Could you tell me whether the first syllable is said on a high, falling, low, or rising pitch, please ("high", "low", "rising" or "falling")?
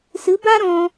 rising